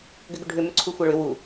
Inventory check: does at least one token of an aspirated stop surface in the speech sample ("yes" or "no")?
yes